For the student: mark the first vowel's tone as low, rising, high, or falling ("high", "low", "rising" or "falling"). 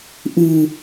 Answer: low